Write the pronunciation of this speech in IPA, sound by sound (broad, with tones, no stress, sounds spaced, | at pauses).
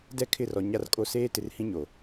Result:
d ɛ˦˨ kʰ ɪ˦˨ r ɔ˨ ɲ a˨ r kʼ o˨ s eː˦ t ɪ˨ r h ĩ˦ ɲ o˨